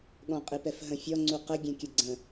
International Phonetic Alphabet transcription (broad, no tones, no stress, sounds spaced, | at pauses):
ɠ ɔ̃ qʼ i p ɛ f ɦ ə̃ fʲ ɔ ŋ͡ǀ u q ə ɡʲ ɛ̃ kʲ ə ɡ͡ǀ ə̃